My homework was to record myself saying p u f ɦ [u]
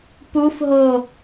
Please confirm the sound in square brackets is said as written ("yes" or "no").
no